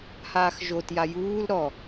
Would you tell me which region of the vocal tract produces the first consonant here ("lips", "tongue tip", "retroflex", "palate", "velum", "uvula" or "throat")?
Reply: throat